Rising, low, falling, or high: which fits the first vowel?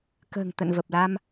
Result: low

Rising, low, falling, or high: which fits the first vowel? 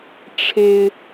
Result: high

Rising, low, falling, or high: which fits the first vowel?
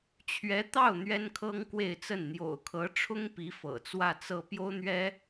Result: rising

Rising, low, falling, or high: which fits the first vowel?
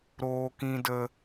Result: high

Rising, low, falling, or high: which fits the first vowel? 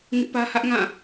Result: high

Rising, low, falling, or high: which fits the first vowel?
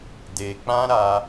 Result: low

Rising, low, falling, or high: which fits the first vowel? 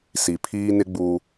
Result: low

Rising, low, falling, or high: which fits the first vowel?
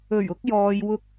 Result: low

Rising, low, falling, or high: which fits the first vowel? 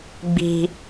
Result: low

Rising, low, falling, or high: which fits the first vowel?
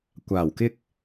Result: low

